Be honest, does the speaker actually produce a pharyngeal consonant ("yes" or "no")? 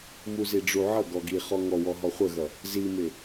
yes